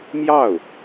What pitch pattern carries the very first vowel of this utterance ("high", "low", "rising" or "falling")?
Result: falling